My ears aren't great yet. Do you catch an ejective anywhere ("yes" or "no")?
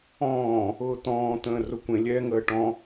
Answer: no